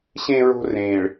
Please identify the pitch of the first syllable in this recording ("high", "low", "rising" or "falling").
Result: low